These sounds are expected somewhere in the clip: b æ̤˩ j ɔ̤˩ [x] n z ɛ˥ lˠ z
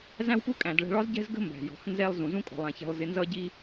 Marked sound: correct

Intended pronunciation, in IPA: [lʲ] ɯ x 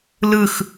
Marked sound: incorrect: l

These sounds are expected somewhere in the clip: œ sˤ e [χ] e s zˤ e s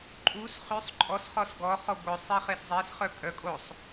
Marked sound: correct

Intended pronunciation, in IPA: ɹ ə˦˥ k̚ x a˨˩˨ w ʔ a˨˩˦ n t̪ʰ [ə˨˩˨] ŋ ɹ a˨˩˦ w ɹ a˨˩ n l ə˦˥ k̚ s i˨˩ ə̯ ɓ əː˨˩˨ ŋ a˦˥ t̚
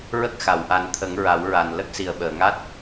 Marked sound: incorrect: ə˨˩˦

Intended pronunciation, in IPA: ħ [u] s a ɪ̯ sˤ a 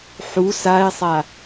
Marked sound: correct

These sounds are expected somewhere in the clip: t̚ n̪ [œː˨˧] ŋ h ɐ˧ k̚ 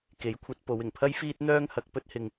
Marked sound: incorrect: œː˥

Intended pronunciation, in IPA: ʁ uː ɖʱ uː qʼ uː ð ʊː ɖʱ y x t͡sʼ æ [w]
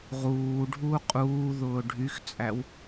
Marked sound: correct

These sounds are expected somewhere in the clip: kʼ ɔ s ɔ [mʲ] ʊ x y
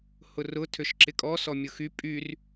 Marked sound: correct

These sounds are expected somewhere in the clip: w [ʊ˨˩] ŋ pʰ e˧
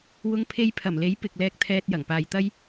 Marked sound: incorrect: ʊ˧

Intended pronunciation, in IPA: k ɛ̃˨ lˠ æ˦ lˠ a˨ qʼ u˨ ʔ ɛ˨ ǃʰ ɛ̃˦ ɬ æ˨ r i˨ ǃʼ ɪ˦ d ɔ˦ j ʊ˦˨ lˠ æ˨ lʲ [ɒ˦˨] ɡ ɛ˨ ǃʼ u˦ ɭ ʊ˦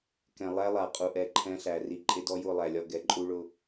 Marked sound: correct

